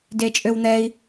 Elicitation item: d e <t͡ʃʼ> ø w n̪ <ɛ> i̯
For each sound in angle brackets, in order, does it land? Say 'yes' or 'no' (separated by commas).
yes, yes